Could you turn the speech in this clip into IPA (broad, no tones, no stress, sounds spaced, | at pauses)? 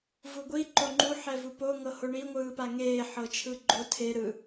v u ɡʷ i ǃ o ŋ͡ǃ u ħ ɛ v u p o ŋ ɤ h o ɳ i ŋʷ ɯː p a ŋ eː ħ ɤ t͡ʃʰ ɯ ɡ͡ǃ o tʰ e ɾ ɯ